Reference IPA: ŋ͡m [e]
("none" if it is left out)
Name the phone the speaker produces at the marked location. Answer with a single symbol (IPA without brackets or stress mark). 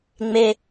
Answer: e